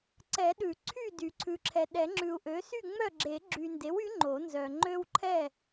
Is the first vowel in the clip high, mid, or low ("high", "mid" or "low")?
mid